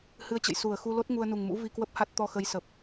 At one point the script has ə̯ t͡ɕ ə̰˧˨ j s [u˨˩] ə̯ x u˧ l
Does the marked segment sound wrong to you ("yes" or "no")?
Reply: no